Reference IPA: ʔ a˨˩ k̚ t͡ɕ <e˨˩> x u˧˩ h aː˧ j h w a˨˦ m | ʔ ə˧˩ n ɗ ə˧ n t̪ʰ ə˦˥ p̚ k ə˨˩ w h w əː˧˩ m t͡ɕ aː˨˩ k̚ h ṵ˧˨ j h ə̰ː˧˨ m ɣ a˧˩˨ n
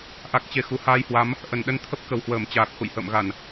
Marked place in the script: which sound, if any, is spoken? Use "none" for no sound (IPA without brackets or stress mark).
e˨˩